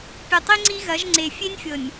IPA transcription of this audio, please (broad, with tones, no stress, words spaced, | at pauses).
pʲɛ˨tˤi˦ŋ͡ǀi˦ɣɐ˨˦ʒ ŋ͡ǀe˨ fʲe˦nʲfʲɤ˨nʲ